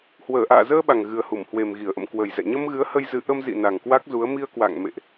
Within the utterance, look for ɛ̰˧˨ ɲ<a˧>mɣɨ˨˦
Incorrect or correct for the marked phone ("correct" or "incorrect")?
incorrect